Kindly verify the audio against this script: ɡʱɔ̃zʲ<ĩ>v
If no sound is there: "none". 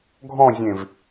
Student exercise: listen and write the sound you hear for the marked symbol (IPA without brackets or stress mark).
ẽ